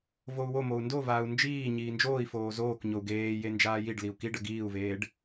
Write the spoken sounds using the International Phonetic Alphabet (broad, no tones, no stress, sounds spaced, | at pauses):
v o u̯ w o m o u̯ n d o v aː u̯ n d͡ʒ iː ɲ iː n d͡ʒ oː i̯ f oː z oː k ɲ o u̯ ɡ eː j e n d͡ʒ aː j i ɖ l i u̯ k i ɖ ə ɡ iː u̯ v eː ɖ